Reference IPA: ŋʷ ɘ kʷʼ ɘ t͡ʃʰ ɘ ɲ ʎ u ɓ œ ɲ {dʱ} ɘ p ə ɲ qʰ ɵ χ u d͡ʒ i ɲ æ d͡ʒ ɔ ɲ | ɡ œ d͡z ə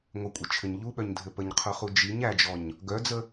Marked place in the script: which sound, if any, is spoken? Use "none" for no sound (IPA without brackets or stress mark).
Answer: dʱ